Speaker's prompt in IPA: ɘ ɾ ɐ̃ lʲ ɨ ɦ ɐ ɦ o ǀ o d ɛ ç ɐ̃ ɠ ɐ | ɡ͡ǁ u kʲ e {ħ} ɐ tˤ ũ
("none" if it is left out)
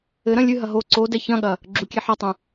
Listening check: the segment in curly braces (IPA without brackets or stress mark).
ħ